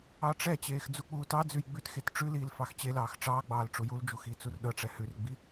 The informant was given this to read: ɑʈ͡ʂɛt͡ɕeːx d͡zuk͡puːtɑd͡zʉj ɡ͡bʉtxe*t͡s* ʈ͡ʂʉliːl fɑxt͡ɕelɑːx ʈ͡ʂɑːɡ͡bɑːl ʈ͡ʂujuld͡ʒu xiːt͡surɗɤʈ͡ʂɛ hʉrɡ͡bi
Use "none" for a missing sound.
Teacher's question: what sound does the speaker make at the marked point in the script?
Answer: t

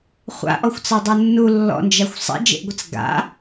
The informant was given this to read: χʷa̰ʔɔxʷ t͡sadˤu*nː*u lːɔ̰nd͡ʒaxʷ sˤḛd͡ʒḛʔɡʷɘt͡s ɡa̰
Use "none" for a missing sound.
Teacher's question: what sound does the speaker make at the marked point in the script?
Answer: nː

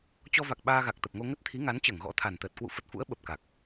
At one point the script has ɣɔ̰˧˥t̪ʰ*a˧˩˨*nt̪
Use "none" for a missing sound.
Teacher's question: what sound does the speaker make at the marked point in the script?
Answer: a˨˩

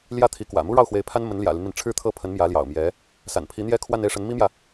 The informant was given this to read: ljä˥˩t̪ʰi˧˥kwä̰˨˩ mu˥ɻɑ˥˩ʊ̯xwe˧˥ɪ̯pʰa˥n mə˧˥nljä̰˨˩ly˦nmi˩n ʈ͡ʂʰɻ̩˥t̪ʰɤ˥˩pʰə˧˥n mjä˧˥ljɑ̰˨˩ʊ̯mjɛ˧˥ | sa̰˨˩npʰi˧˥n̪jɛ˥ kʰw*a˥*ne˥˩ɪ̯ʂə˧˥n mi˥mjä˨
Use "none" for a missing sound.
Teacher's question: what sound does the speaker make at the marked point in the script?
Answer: a˥˧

